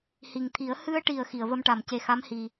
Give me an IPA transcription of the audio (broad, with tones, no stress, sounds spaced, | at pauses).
h i˨˩ ŋ t̪ʰ i˨˩˦ ə̯ h ɨ˧ ə̯ ʈ i˨˩ ə̯ x i˨˩˨ ə̯ v ə˧ m ʈ a˨˩˨ m c e˨˩˦ x a˧˥ m h i˨˩